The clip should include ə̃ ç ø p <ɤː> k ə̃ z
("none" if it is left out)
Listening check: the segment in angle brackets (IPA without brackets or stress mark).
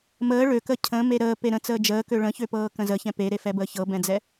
ɤː